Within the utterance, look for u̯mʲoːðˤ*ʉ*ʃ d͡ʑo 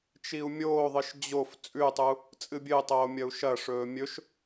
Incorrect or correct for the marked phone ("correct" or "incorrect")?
incorrect